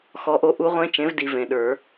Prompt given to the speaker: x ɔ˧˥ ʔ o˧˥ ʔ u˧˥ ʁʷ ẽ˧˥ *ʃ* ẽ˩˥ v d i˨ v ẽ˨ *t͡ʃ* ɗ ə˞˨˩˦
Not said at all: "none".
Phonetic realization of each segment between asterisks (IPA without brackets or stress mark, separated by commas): t͡ʃ, none